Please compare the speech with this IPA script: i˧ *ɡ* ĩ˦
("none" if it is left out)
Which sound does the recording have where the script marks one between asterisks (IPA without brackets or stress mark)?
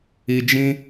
d͡ʒ